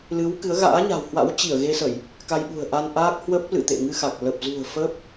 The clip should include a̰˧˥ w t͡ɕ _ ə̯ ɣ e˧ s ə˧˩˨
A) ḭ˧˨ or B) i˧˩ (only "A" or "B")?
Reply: B